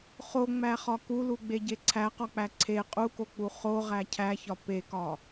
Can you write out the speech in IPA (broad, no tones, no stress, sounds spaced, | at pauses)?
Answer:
χ o ŋ͡m æ χ ɒ k u l u ɡ͡b e ɟ e ǀʰ æ q ɒ k͡p æ ǀʰ e qʼ u k o k͡p u χ o ʁ æ cʰ æ ç ɒ p e k ɒ